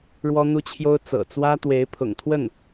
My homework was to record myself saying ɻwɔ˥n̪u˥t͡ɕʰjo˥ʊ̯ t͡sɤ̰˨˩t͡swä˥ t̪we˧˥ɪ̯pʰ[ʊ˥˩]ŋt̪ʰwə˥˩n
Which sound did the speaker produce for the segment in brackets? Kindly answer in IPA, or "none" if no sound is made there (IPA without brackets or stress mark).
ʊ̰˨˩